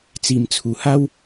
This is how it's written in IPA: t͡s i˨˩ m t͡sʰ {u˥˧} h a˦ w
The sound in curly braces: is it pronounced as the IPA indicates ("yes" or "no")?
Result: no